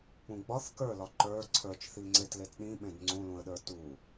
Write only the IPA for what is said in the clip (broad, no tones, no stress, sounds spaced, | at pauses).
k͡p ũ ɡ͡b ɒ θ k ə˞ l ɒ ǃ ə˞ ǀʰ ə˞ t͡ʃ θ i ŋ͡ǀ e t l e t ɗ ĩ ɓ ẽ d ŋ͡ǀ ũ l ũ ə̯ ɗ ə˞ t u